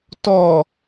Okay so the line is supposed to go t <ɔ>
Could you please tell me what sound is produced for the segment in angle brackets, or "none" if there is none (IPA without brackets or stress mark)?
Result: ɔ